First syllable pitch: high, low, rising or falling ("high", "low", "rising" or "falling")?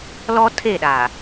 high